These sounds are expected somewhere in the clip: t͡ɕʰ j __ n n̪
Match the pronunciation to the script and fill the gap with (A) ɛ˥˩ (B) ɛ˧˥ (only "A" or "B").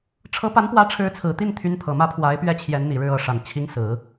B